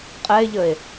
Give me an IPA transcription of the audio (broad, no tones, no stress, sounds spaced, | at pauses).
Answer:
qʼ ɛ e̯ ʎ ə e̯